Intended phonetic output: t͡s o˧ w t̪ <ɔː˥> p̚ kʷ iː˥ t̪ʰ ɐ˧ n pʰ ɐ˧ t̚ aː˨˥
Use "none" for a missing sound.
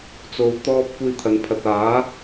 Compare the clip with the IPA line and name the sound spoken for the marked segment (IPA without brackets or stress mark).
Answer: ɔː˥